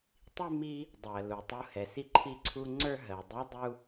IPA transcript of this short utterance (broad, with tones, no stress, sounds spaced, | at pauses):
tˤ i˥ m i˧ | dˤ ɜ˩ l u˩ tˤ u˧ h ɛ˩ s i˥ ǃʰ i˧ ǀʰ u˧ ŋ͡ǀ ə˞˥ ɦ ɜ˩ dˤ o˧˥ dˤ u˧